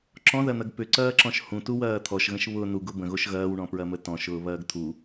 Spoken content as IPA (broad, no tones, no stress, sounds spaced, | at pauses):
ǁ ɔ̃ ð ɐ n̪ ɐ ɡ p ʏ ǀ ɐː ǁ ɔ̃ ʃ h ũ t u w ɐː t̪ʰ ɔ ʃ ɣ ə̃ ʃ β ʊ n u ɡ ʊ b ə̃ ɣ o ʃ ɣ ɐː w ɳ ɔ̃ p ɹ ɐ m ə t ɔ̃ ʃ ʊː β ɐː ɡ t̪ʰ u